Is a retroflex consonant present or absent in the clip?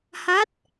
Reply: absent